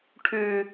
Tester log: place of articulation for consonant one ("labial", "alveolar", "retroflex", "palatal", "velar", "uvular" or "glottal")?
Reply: retroflex